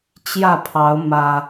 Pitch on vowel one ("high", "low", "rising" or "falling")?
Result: falling